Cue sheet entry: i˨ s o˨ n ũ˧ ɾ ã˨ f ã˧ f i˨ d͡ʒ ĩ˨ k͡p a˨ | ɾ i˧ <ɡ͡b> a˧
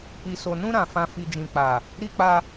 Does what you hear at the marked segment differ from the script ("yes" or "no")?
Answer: yes